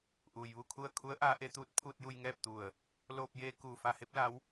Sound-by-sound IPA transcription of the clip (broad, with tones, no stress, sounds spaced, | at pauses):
ʔ uː˩ j ʋ u˥˨ kʰ u˥˨ ə̯ kʰ u˧˥ ə̯ ʔ aː˧˥ ʔ e˩˧ t̪ uː˧˥ t̚ pʰ uː˧ t̚ j u˧ j ŋ ɛː˥˨ p̚ t̪ u˧˩ ə̯ | l oː˧ p̚ j eː˧ k uː˧˩ f a˧ h e˧˥ p̚ l a˧˥ w